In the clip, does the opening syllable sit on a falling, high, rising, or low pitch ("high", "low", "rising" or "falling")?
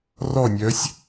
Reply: falling